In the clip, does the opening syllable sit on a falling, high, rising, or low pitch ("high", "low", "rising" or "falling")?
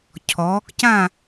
rising